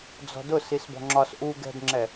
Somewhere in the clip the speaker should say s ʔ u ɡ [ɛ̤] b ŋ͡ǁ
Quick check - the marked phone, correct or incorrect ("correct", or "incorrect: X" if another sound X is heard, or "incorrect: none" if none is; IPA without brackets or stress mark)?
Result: correct